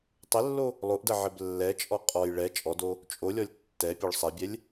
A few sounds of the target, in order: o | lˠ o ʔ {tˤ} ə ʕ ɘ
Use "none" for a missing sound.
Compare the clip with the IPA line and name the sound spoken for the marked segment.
d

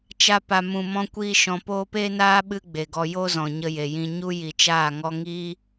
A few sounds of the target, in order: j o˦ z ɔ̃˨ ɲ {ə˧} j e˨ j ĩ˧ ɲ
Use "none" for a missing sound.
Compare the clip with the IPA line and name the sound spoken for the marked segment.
ə˧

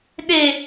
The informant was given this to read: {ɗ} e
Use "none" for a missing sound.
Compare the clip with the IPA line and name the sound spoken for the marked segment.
ɗ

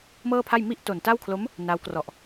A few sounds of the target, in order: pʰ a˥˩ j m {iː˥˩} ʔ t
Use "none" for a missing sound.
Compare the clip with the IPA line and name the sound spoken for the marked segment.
i˥˩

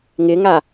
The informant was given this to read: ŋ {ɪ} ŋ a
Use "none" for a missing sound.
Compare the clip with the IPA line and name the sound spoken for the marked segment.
ɪ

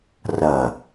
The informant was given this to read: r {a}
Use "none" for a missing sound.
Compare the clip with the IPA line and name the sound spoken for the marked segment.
ɐ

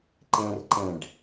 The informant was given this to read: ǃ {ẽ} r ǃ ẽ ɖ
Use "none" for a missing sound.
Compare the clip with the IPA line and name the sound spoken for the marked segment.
ẽ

